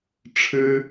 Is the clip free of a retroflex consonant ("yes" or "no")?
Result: no